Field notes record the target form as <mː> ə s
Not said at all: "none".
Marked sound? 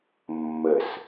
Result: mː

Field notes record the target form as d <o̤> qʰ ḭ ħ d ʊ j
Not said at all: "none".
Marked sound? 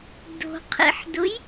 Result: o̤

